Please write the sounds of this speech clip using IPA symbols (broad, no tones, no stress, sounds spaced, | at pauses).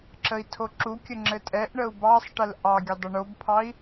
ǁ ə i̯ tʰ o ǁ u kʲ ə ŋ͡ǁ ɘ tʼ ɛ ʔ ɳ ə u̯ b ɑ sˤ ʈ ə l ʔ ɑ ɡʲ ə dˤ ə ɳ o b pʰ ɑ i̯